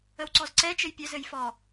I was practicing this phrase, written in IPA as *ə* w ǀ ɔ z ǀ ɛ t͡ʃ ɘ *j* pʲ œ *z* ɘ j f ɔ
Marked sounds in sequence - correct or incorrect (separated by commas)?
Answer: correct, correct, correct